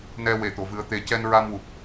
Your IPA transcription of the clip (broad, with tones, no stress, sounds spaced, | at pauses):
n ɛ˧ w e˨˩˨ t̪ o˨˩˨ v ɨ˨˩˦ ə̯ t̪ e˨˩ c ɛ˧ n ɹ a˧ m w u˨˩ p̚